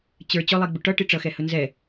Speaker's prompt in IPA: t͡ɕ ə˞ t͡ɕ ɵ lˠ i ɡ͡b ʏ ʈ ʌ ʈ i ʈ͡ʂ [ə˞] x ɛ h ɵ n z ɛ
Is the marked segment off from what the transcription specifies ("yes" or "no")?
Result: yes